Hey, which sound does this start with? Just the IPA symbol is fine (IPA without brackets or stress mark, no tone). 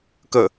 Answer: k